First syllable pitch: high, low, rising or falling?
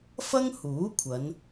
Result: high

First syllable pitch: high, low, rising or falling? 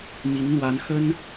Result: rising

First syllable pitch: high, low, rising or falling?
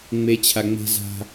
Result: high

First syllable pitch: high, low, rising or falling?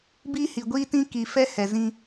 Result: high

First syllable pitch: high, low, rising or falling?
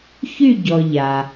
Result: falling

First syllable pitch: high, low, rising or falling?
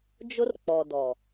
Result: high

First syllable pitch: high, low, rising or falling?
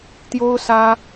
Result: high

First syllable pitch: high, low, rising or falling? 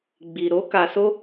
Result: low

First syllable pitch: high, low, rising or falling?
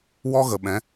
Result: high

